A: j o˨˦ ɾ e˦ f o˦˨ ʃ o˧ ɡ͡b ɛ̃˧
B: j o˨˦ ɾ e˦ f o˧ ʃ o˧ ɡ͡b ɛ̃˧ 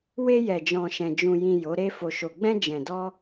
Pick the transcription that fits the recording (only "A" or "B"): B